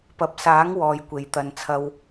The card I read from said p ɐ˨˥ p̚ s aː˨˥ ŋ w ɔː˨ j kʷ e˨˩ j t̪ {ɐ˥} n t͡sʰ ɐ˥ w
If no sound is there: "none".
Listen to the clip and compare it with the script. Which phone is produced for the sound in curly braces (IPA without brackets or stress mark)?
ɐ˨˧